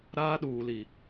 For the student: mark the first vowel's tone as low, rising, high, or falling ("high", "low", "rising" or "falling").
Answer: high